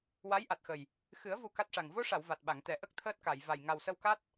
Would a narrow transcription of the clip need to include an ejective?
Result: no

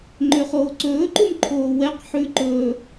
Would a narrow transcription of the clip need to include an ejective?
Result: no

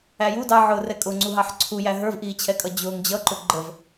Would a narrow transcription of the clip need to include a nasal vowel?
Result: no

